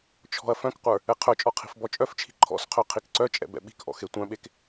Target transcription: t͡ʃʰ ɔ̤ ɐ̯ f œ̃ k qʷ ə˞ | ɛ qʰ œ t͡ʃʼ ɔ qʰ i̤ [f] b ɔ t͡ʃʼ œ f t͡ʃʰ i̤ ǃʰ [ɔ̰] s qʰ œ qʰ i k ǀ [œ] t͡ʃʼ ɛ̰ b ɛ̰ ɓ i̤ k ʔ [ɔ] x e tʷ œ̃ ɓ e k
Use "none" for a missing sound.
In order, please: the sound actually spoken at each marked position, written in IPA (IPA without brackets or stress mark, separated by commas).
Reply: f, ɔ̰, œ, ɔ̰